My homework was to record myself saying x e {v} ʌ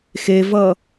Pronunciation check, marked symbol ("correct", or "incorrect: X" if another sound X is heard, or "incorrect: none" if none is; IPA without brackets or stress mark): correct